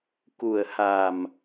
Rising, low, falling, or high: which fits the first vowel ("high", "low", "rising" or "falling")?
low